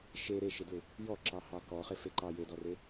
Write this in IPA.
ʃ e ɾ e ʃ ɪ d l ɪ | j ɔ ǁ ɑ h ɑ k ɔ χ ɪ f e ǃ ɑ j e d ɔ r e

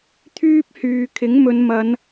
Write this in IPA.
t̪ʰ yː˥ p̚ h yː˨ kʰ ɪ˨˥ ŋ m ɵ˨˧ n m ɐ˨˧ n

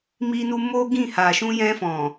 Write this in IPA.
m i˧ n u˧ m o˦ ɡ ĩ˦˨ h a˨ ʃ ũ˧ j ɛ̃˧ f ɔ̃˨

